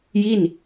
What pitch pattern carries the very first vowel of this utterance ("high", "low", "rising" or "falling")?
falling